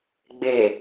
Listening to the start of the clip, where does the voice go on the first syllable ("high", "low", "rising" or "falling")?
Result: low